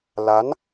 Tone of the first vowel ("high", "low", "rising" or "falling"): rising